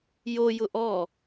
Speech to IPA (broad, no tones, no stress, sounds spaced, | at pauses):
j o j ʊ ʔ ɔ